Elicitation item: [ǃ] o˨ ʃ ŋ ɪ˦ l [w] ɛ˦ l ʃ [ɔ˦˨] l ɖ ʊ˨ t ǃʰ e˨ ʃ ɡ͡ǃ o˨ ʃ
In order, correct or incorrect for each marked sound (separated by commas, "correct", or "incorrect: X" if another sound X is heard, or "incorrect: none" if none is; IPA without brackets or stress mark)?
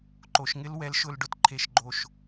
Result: correct, correct, incorrect: ʊ˦˨